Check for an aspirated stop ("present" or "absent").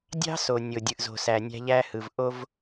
absent